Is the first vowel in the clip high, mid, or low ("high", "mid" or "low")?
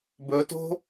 mid